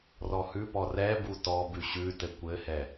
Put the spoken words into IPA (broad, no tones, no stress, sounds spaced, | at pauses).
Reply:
r ɔ h ʉ p ɔ r ɛ b u t ɔ b ʉ ɕ ʉ t ɘ kʷ ɘ h ɛ